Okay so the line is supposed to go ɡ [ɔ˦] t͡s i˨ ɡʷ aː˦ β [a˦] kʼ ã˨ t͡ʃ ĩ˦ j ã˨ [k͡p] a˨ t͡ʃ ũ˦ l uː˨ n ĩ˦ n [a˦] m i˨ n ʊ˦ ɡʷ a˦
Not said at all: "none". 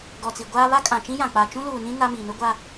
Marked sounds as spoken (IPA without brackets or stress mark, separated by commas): ɔ˨, a˦, k͡p, a˦